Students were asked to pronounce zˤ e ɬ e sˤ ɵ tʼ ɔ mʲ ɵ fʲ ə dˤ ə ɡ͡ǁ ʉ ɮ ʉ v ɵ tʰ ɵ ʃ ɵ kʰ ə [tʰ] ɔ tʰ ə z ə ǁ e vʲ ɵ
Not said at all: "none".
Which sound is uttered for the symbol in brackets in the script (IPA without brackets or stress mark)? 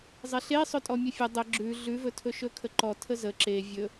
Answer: ǃ